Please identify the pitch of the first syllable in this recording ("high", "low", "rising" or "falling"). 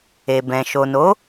low